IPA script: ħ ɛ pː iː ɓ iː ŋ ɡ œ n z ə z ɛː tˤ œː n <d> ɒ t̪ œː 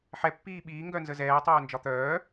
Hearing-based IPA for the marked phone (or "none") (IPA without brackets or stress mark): d͡ʒ